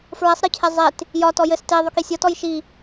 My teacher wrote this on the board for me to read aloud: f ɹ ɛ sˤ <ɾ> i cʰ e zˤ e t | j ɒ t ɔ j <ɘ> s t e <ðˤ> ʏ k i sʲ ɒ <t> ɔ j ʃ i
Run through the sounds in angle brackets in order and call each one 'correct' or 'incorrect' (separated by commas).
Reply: correct, correct, correct, correct